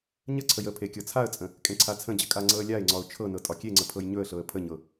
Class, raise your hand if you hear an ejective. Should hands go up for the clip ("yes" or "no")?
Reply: yes